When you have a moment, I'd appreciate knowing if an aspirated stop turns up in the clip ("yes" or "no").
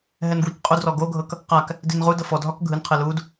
yes